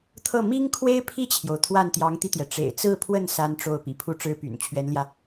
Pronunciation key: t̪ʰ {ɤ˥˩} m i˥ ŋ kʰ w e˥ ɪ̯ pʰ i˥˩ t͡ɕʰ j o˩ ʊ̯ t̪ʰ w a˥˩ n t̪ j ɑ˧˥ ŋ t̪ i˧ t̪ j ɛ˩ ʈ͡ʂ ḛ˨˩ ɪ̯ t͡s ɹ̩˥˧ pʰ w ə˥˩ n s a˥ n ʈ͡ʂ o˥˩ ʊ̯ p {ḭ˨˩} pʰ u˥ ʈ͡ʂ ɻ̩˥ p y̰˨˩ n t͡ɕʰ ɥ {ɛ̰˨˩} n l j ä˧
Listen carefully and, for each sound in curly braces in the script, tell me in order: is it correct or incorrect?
correct, correct, incorrect: ɛ˧˥

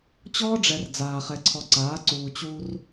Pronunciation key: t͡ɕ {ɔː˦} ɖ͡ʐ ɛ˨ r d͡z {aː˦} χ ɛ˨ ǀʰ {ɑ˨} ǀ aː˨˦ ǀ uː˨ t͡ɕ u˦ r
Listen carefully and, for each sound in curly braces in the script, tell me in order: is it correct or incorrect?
correct, incorrect: aː˨, incorrect: ɔ˨

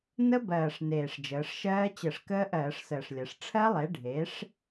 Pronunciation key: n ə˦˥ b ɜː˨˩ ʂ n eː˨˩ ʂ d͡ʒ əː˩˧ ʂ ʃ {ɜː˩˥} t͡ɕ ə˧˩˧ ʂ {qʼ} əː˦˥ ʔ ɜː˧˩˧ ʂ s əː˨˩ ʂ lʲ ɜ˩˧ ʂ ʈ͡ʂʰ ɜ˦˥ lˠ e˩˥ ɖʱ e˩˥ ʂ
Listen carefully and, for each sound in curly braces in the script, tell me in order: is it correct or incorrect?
incorrect: ɜː˦˥, incorrect: k

